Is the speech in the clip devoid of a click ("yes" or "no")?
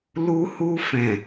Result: yes